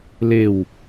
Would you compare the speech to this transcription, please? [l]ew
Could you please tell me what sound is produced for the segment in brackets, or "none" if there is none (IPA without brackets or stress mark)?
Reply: l